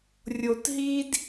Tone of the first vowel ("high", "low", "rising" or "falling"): low